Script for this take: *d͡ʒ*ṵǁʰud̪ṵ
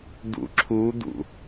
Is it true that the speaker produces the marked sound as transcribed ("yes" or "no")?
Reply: no